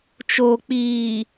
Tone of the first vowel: low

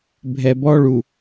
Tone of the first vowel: low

